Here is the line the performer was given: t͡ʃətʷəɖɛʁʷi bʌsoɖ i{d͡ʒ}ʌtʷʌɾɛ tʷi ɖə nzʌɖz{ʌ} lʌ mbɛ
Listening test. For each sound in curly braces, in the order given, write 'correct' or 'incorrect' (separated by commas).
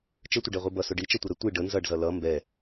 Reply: incorrect, correct